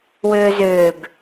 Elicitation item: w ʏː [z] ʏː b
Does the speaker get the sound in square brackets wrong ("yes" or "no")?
no